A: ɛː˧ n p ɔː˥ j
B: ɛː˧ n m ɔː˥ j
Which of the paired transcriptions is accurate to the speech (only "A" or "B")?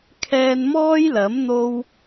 B